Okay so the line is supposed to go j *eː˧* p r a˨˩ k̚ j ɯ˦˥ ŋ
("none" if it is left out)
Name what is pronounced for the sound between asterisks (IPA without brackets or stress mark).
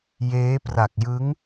eː˦˥